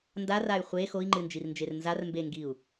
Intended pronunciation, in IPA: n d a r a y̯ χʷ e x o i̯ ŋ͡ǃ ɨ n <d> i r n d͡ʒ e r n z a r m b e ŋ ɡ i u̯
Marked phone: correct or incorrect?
incorrect